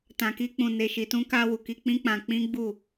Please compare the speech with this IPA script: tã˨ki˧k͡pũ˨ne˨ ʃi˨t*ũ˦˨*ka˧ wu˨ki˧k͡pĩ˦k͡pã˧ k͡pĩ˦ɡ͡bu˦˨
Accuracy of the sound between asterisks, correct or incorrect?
incorrect